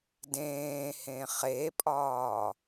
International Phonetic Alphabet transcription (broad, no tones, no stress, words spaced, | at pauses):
dẽːhẽ χepʼɒː